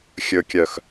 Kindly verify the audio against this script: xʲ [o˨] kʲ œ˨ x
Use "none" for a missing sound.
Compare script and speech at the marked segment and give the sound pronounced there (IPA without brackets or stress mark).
ɵ˨